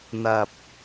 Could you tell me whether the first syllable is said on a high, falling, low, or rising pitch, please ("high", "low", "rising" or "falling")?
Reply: low